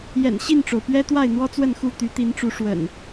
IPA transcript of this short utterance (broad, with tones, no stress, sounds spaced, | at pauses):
j ɛ̰˨˩ n ɕ i˥˨ n ʈ͡ʂ o˩ ʊ̯ p ɥ ɛ˦ t̪ w a˥˨ ɪ̯ n̪ w ɔ˦ t͡s w ə˥˨ n x u˥˨ t̪ y˨˦ t̪ i˨˦ n ʈ͡ʂ u˨˦ ʂ w ə̰˨˩ n